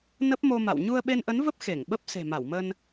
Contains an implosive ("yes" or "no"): yes